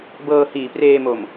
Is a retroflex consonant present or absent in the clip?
absent